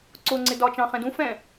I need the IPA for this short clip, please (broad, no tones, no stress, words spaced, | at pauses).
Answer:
ǀʊŋ͡ǀɪ dɒt͡ʃɑ̃ χɛ̃dũ fɛ̃